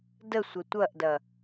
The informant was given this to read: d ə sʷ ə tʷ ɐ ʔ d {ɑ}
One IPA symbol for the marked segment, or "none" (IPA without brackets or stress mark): ɐ